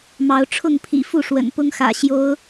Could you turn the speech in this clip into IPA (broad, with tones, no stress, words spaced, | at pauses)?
mɑ˨˦ʊ̯ʈ͡ʂʰʊ˥˨ŋpʰḭ˨˩ fu˥˨ʂwə̰˨˩n pʊ˦ŋ xä̰˨˩ ɕjo˨˦ʊ̯